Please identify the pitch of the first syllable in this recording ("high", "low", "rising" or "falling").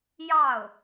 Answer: falling